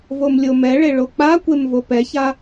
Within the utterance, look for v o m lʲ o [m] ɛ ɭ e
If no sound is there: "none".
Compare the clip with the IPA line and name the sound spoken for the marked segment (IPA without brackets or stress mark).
m